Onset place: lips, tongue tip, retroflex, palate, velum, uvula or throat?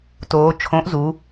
tongue tip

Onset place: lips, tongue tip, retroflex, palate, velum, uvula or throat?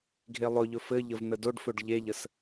velum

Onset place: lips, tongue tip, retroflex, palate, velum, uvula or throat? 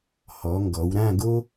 throat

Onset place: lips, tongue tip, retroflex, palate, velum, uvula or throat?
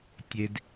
tongue tip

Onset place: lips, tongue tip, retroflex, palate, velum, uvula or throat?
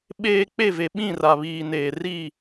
lips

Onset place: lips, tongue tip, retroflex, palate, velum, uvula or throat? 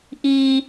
throat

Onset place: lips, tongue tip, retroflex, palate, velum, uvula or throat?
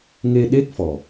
velum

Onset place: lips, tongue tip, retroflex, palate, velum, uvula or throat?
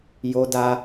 palate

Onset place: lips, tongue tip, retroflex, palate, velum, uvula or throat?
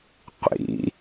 uvula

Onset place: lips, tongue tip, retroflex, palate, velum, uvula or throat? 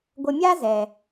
velum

